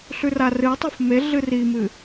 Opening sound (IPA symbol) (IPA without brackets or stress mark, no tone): ɬ